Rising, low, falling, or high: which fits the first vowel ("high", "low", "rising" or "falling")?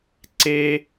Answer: high